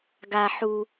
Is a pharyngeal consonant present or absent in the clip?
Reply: present